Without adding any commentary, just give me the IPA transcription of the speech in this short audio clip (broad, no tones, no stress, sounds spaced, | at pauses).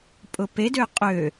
pʼ ʊ p e d ø qʼ ø